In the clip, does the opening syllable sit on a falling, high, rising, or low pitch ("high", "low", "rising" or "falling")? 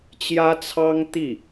high